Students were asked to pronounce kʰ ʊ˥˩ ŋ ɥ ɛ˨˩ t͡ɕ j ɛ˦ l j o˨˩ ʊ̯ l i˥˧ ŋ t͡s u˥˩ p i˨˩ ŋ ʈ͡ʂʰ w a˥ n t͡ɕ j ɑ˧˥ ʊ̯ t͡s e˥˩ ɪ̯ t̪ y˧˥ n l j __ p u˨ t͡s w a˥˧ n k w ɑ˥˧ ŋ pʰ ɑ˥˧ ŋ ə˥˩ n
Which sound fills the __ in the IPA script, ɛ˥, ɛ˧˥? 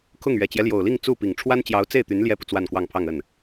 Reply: ɛ˥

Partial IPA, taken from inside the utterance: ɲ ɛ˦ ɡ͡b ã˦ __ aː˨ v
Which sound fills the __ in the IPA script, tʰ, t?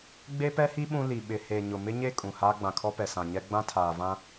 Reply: tʰ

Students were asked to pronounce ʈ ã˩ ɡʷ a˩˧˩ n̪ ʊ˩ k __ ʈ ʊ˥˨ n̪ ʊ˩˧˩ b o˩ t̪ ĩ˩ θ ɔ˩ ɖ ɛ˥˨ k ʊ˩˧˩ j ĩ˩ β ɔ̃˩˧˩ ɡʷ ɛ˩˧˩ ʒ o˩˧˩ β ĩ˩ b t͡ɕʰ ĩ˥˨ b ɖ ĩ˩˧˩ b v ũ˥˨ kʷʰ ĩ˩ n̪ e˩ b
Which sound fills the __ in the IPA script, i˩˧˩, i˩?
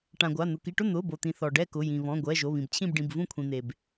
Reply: i˩˧˩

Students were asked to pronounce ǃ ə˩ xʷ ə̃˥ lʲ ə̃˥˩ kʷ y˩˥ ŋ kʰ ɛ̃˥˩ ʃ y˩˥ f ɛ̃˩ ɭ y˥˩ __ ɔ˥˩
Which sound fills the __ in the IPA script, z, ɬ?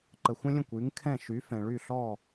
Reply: ɬ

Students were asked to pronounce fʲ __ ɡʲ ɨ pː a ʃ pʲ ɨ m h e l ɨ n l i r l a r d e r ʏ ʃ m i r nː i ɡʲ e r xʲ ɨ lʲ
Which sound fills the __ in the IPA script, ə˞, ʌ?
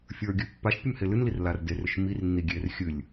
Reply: ə˞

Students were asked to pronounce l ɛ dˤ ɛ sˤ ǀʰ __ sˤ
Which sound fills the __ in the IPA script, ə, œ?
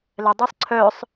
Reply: œ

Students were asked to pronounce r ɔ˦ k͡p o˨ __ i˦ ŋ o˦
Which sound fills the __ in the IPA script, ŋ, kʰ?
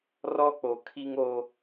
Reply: kʰ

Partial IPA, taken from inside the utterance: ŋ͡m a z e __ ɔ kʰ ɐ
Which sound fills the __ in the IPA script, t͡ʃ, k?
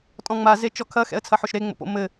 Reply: t͡ʃ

